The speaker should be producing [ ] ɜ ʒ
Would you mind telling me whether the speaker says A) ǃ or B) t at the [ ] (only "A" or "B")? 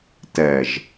B